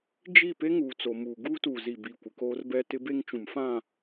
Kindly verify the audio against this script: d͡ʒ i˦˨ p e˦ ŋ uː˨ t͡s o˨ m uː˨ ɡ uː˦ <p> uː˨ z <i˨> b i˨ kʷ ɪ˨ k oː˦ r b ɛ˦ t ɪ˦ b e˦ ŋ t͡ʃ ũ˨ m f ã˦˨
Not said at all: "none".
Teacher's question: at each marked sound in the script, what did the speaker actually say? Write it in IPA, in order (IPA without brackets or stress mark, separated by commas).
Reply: t, i˨